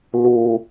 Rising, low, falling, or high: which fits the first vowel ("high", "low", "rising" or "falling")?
high